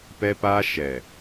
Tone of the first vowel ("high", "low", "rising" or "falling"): high